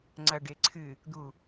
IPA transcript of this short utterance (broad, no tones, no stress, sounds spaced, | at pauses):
ŋ͡ǀ ɐ ɖ e ǀʰ ɨ | d̪ u